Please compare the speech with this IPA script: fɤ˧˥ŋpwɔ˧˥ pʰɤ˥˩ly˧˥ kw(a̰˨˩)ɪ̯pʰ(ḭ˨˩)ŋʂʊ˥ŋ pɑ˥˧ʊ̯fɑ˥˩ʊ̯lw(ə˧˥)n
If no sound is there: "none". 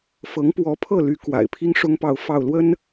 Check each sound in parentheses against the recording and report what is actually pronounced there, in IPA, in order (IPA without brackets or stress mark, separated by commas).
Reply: a̰˨˩, i˥, ə˥